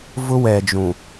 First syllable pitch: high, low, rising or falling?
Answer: high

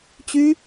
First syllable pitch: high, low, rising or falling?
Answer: high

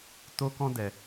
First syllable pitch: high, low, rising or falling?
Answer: high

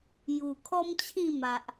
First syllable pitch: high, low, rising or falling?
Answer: low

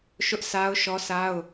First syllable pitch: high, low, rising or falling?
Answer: high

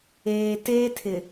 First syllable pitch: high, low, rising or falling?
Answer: low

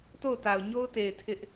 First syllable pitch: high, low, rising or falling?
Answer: falling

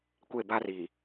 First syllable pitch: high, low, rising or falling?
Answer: falling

